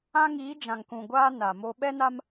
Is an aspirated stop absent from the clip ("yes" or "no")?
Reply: yes